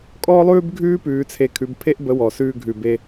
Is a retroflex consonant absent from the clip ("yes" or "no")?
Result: yes